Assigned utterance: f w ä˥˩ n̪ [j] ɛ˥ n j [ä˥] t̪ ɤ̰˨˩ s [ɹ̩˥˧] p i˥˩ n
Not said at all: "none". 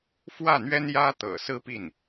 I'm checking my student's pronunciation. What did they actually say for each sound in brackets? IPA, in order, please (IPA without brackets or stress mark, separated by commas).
ɥ, ä˥, ɹ̩˥